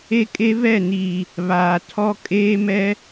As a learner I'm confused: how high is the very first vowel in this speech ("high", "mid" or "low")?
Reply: mid